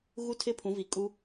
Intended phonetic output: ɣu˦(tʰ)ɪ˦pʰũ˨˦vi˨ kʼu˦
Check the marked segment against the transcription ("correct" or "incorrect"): correct